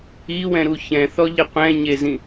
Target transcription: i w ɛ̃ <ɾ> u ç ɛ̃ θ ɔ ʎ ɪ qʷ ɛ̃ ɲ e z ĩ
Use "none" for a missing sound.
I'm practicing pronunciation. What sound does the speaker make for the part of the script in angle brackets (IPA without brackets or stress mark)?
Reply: ɾ